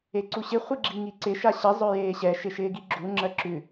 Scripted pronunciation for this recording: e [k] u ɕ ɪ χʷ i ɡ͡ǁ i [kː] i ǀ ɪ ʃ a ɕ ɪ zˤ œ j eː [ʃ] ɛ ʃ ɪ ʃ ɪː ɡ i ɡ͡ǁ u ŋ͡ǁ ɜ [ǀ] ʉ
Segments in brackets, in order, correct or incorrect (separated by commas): incorrect, incorrect, incorrect, incorrect